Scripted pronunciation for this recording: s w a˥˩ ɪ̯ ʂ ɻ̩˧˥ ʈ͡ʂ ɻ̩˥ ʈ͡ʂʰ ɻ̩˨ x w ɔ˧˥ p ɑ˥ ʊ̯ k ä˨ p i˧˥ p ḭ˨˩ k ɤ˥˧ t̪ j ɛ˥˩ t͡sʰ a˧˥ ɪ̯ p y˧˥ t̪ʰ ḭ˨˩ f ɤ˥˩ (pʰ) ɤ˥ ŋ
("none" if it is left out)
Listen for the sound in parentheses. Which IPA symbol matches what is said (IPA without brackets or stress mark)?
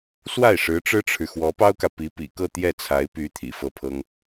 pʰ